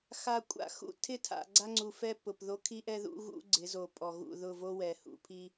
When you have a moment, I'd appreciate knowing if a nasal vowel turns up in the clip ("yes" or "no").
no